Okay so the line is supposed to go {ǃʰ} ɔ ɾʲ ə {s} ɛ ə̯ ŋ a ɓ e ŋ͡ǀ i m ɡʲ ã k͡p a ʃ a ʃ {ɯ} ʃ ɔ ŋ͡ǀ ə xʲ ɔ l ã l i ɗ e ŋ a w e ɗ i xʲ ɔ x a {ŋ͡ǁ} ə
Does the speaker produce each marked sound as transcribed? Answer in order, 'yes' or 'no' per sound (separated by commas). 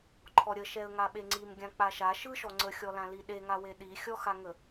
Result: yes, no, yes, no